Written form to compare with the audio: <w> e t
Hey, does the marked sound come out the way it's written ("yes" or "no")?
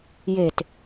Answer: no